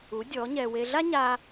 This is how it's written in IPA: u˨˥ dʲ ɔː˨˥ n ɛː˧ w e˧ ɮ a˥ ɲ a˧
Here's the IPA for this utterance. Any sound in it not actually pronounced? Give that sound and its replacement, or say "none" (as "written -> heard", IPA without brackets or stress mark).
n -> ɲ